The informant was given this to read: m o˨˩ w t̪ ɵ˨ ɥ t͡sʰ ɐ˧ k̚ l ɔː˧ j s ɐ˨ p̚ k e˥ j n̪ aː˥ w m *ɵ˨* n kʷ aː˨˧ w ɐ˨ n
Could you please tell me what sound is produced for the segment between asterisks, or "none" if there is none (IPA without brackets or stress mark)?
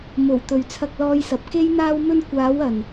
ɵ˥